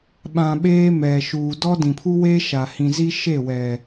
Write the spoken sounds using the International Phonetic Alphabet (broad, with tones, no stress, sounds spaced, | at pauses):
ɓ ã˨ ɓ eː˦ m ɛ˨ ʃ uː˨ d ɔ˦ d ĩ˨ pʰ u˦ w eː˦ ʃ a˨ h ĩ˨ z i˦ ʃ e˦˨ w ɛ˨